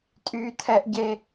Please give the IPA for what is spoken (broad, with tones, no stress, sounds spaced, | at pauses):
tʼ yː˥ tʰ ɛ˥ ʔ ɟ e˥